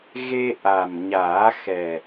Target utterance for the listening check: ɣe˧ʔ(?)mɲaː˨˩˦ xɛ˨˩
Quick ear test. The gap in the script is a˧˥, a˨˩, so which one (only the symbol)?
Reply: a˨˩